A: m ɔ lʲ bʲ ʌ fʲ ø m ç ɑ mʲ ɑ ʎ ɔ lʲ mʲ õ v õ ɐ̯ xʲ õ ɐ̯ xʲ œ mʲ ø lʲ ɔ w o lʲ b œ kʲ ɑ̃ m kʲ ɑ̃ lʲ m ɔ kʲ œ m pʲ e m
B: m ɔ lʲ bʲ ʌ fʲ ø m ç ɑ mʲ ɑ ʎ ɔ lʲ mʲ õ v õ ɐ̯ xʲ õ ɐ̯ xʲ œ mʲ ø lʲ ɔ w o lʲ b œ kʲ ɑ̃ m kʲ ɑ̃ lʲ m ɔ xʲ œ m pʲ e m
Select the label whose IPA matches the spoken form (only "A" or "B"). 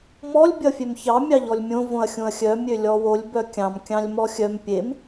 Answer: B